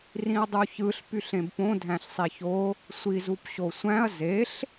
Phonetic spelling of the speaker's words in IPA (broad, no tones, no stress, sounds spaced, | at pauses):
r ĩ ɐ̯ dˤ u ç ɯ ɬ p y ɬ ẽ b p õ dʱ æ̃ ɬ sˤ i ç o | sʷ i z u p ɕ o sʷ æ̃ ɐ̯ z e ɬ